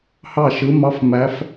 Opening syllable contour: falling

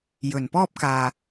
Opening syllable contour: low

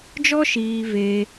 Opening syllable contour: high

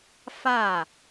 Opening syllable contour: falling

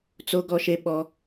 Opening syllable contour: high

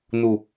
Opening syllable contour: low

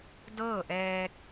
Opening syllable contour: falling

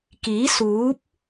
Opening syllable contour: rising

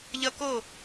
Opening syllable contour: high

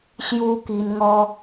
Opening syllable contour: high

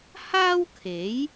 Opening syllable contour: high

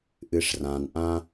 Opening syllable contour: low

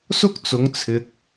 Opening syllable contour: high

